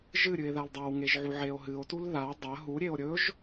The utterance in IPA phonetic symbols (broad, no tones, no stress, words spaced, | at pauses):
ʒɨɾʲɨe̯ ðaldˤawŋeʒ ʕuʕeo̯ɦɨo̯tul ða dˤɐ ɦuɾʲeo̯ ɾʲɵʒ